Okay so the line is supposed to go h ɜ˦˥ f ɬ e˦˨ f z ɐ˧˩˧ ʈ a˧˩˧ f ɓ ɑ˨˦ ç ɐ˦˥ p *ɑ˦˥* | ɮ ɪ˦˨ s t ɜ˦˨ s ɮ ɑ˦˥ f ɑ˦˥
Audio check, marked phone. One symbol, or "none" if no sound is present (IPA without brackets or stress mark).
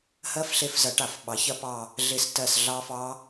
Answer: ɑ˦˨